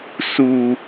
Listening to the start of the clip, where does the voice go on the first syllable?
low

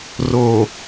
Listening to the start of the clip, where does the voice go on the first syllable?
low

